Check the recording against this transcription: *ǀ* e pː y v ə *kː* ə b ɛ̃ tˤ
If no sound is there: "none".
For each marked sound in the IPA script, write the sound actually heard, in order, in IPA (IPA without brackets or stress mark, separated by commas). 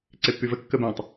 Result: ǀ, kː